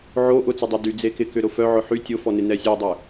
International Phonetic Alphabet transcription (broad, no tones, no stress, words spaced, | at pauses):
ʕo ʔʊt͡sʊdˤœ dyd͡zekɪ kʏɾʊfœ ʕʊħy tʲʊfɔnɪ nɛsʲœdˤʏ